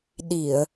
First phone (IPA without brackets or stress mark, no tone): ɗ